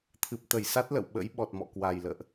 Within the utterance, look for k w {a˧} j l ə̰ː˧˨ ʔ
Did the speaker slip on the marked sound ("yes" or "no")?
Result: yes